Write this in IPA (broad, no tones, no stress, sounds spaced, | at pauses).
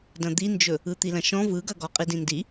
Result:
d ɐ̃ d̪ i n d͡ʒ ɵ | ɯ t̪ i l ɐ̃ ʃ ɔ̃ v ɯ ɡ ɐ ɡ ɔ qʼ i d ĩ n d i